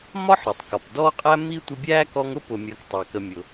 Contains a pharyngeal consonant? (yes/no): yes